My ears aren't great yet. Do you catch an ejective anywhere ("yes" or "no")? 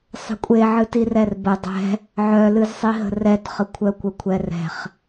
yes